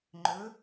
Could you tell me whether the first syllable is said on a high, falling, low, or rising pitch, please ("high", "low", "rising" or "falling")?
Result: rising